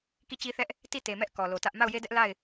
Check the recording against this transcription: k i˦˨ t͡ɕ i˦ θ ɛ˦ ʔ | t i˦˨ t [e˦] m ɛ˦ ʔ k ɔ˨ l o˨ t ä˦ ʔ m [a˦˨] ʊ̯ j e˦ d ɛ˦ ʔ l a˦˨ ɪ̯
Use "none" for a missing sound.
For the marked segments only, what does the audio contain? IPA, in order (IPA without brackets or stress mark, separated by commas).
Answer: e˨, a˦˨